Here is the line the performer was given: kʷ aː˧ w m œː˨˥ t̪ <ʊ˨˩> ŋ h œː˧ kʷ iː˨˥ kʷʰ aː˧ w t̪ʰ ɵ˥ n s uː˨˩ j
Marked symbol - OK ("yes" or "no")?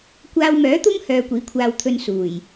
no